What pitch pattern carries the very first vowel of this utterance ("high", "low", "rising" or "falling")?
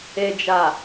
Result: low